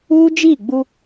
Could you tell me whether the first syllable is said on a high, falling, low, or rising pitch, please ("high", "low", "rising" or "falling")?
high